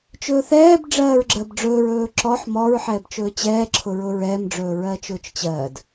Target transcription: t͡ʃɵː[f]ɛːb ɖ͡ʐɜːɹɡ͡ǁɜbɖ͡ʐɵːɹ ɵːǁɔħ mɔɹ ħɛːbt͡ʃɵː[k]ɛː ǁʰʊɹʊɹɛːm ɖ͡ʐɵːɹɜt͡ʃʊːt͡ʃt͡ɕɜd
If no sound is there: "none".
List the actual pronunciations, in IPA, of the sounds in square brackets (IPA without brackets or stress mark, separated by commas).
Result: θ, t͡ɕ